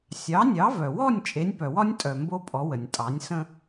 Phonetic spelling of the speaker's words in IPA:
sʲ ɑ˩˥ nʲ ɑ˩˥ v œ˩ w ɔ˥˩ nʲ t͡ʃʼ e˩˥ nʲ p œ˩ w ɒ˥ nʲ tʼ œ˩ m b o˥ pʼ ɔ˩˥ w ə˩ nʲ tʼ ɑ˩˥ nʲ s ə̃˥

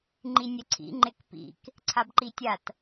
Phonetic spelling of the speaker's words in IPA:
ŋ͡ǃ i nʲ ɛ ǀʰ ḭ ŋ͡ǃ e k p ḭ k | ǀʰ a b ǃ i tʲ a t

